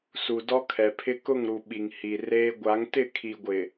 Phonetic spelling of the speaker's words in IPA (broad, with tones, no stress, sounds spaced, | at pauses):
s u˨ d ɔ˦ kʰ ɛ˨ pʰ ɪ˦ k ʊ˦˨ ŋ ɾ u˨ ɓ i˨ ŋ h i˨ r eː˦ ɡʷ a˨˦ ŋ t ɪ˦˨ kʰ i˨ ɡʷ ɪ˨